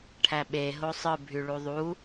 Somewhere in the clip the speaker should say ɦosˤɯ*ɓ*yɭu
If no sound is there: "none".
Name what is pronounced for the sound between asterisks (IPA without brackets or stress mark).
bʱ